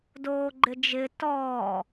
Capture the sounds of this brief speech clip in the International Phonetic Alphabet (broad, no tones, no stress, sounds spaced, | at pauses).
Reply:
d oː ɡ͡ǃ ɪ d͡ʒ ɪ t ɔː